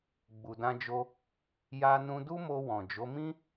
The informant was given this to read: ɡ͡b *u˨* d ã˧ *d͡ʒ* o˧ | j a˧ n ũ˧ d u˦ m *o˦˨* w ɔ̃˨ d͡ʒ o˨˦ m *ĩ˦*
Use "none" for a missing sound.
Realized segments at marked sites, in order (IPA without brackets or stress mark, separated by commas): u˨, d͡ʒ, o˧, ĩ˦